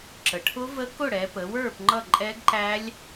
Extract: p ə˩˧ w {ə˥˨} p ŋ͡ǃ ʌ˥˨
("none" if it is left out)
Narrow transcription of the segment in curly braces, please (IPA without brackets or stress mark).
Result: ə˞˥˨